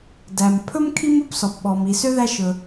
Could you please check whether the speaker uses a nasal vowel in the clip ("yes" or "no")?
no